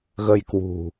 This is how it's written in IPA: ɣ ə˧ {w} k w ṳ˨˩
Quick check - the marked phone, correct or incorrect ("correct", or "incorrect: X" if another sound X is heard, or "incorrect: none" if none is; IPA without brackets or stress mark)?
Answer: incorrect: j